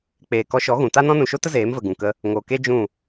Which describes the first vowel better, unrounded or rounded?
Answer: unrounded